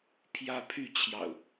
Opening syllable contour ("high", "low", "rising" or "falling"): high